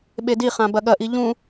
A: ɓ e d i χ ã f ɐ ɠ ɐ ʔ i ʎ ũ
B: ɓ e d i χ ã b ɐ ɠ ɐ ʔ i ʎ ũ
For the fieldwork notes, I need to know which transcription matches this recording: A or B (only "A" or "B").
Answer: B